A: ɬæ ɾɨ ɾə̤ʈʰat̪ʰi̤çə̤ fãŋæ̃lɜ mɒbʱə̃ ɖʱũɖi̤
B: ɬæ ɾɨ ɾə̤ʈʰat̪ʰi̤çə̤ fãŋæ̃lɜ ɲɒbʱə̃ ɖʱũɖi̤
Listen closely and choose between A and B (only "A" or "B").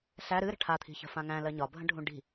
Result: B